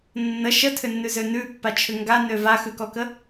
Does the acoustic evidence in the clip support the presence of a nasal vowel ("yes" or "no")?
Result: no